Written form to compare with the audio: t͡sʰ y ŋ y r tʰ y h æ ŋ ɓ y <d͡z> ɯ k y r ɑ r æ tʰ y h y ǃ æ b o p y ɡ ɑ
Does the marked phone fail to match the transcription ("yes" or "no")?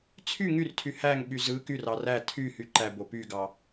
yes